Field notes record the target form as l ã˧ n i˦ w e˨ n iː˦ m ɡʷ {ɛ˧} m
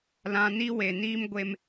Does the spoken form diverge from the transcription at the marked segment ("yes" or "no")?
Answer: yes